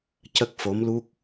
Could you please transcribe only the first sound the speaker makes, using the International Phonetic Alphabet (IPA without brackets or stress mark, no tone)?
c